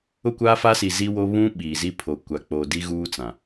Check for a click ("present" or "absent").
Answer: absent